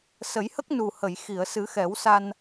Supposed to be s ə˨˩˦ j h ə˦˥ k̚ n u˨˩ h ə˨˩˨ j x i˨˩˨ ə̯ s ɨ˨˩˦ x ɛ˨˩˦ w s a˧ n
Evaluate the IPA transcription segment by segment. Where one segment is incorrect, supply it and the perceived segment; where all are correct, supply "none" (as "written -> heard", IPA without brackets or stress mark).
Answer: none